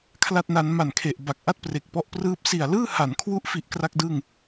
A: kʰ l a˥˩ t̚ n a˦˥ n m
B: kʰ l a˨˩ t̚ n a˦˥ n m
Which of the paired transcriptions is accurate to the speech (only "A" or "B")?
A